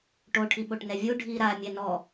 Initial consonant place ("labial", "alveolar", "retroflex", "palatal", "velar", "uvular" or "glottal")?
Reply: retroflex